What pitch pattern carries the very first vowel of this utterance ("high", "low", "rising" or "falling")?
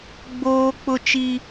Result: high